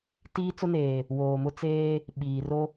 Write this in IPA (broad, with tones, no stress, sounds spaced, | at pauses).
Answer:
t iː˦ t͡s ʊ˦ n eː˨ | w oː˨ m ʊ˦ t͡s eː˦ | ɓ iː˨ r o˦